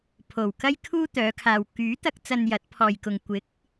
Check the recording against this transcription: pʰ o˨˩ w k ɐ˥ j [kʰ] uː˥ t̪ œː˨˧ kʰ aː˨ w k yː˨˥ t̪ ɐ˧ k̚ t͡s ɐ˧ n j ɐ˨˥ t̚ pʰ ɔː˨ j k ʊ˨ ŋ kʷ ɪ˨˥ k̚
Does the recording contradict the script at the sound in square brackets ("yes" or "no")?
no